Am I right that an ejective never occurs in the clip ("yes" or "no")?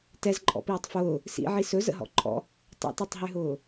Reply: no